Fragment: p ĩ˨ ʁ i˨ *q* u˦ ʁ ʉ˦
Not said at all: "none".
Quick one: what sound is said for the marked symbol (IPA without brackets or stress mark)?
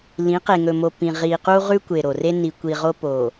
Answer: q